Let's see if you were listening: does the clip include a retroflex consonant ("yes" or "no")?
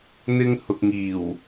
no